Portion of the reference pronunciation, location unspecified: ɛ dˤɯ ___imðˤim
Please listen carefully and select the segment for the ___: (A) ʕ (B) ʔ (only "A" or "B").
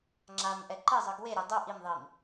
B